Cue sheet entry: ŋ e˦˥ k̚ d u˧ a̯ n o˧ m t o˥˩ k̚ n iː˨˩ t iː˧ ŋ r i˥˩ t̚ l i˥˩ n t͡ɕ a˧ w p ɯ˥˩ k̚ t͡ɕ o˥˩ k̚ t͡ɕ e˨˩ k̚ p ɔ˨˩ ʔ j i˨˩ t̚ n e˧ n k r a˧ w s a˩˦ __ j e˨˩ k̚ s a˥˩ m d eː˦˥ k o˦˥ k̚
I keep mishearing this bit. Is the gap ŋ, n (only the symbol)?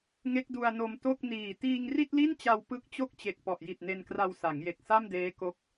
ŋ